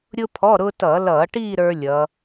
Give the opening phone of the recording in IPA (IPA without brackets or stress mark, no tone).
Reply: ɾʲ